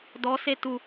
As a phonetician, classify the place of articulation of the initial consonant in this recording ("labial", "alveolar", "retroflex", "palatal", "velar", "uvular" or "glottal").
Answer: alveolar